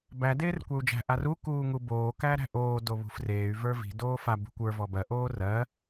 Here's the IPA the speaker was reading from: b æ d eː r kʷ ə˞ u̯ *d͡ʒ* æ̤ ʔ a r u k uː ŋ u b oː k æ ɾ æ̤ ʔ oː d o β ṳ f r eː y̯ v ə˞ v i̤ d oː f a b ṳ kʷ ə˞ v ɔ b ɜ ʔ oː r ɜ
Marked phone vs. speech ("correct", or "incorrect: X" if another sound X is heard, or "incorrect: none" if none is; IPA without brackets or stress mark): correct